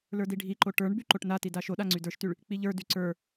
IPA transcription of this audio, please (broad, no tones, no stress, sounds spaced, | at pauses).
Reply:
l ə˞ d i ɖʱ i ǃ o ʈ ə˞ ɳ b y ǃ o ʈ n a t i d a ʃ o ɗ a ŋ͡ǀ y d ə˞ ʃ t y ɭ | k͡p i ʎ ə˞ d y ǀ ə˞